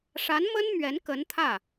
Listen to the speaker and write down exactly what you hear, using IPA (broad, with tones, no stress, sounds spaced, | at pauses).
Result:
ʂ a˧˥ n m ə˥ n m ɥ ɛ˧˥ n k ə˧˥ n t̪ʰ ä˥˩